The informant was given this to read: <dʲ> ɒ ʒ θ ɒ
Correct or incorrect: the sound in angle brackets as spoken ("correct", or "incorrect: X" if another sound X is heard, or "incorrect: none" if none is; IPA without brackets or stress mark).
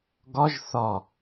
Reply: incorrect: ɡ